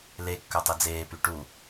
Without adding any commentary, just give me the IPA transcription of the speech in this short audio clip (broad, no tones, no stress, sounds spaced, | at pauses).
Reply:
l e kː œ tˤ i d͡z eː p y ʈ u